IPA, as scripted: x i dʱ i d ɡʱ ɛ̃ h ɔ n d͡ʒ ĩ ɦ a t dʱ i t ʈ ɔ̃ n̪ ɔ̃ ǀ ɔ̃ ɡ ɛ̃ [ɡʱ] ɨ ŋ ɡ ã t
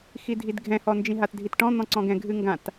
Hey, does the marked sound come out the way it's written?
yes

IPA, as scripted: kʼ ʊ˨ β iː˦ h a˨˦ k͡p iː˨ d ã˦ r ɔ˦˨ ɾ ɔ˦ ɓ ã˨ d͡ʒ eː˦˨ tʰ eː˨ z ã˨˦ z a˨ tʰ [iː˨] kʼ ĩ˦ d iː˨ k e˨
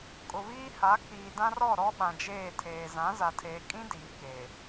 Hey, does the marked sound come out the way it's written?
no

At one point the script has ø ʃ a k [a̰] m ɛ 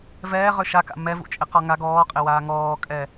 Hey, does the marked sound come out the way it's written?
yes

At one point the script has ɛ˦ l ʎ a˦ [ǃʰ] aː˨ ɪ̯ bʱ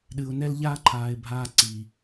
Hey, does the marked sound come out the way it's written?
yes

